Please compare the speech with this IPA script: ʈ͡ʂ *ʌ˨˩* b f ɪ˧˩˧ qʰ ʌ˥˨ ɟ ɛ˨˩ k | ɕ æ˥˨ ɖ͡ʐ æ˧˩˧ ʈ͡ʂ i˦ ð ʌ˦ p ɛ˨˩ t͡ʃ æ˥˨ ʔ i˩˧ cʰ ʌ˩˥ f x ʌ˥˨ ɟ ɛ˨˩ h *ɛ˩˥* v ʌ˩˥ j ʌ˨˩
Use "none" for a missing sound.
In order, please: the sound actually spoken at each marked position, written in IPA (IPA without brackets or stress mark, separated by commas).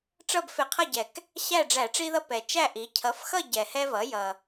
ʌ˥˨, ɛ˦